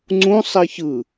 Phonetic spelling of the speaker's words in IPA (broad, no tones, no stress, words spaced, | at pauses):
ŋ͡ǀũ sˤiçɯ